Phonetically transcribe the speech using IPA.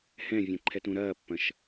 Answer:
h ɛ̃ vʲ ɛ̃ ǃʰ ɛ t ũ ɾ ɐː pː ɐ̃ ʃ

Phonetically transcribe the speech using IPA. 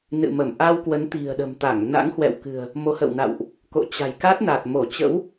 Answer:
n ɨ̰˧˨ m ə˧˩ m ʔ a˧ w k w ə˨˦ n t̪ i̤˨˩ ə̯ ɗ ə̤˨˩ m t̪ a˧˩ ŋ n a̰˧˥ ŋ h w ɛ̰˧˨ w k ɨ̤˨˩ ə̯ | m o˨˦ h ə̰˧˨ w n a̰˧˨ w ʔ | k o̰˧˨ t͡ɕ a̤˨˩ j k a˦˥ t̚ n a˨˩ t̚ m o˧˩ t͡ɕ ə̰˧˥ w

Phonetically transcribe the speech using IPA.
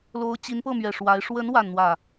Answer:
l o˧˥ ʊ̯ t͡ɕ i˧˥ n p ɤ˥˩ m ɥ ɛ˨˩ ʂ w a˧˥ ɪ̯ ʂ w ə˧˥ n w a˥˧ n n̪ w ä˥˩

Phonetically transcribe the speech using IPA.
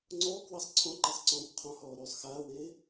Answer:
ŋ͡ǀ ɔː k w a sˤ ǀʰ ɔ̃ ǃ e sˤ ǀ ɔ̃ː kʷ qʰ ɔ̃ h ɔː ɾ yː sˤ x aː w eː

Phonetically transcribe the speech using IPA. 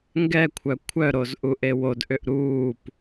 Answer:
ŋ ɡ ɛ kʷʰ œ kʷʰ œ ɾ o z ʔ u ʔ e w o d ʔ ʏ ʔ ɾ uː p

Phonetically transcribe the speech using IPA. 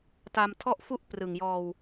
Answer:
t a˧ m tʰ ɔ˥˩ ʔ f u˥˩ ʔ p r ɯ˨˩ ŋ j ɔː˧ w

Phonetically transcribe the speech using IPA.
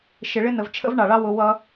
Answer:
ʃ ɪ˨ ɭ ɪ˦ n ə˨ v t͡ʃʰ ə̰˦ v ɳ ɑ˨ ɭ ɑ˦ w ʊ˧ w ʌ˦

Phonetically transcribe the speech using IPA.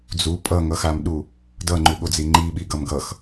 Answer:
d͡z u pʼ ʌ ŋ ʌ x a m ɗ u | d ʌ ŋ͡ǃ u ɠ o d͡z i ŋ͡ǃ i ɓ i ɡ ʌ m ɡ ʌ x

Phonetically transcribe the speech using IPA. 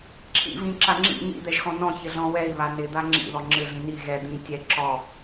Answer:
ǁʰ ḭ v ĩ ǁ a ŋ͡ǁ ḭ ɲ ḭ d̪ ɛ ʒ x ɔ̃ n ɔ̃ ç ɪ ɮ ɔ̃ w ɛ i̯ β a n ɪ d̪ a ŋ͡ǁ ḭ ð ɔ ŋ͡ǁ ɪ ɮ ĩ n i ɣ ɛ d̪ ĩ tʲ ɛ ǁ ɔ

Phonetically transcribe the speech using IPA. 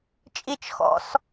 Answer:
t͡ʃʼ i t͡ʃ x ɔ̰ s

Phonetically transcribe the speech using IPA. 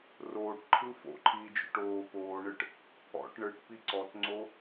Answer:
r oː ʈ ǃʰ ɯ f o̰ ǃʰ iː d͡ʒ o̰ ʈ oː p oː ɳ ɯ ʈ | ɔ̰ ʈ ɳ ɯ ʈ p i ǀ ɔ t ŋ͡ǀ o

